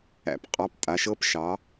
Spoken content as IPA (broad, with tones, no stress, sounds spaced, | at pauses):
æ̰˨˦ p qʼ ɑ˧˥˧ p tʼ a˨˦ ʃ ɤ˦˥ p ʃ ɑ˨˦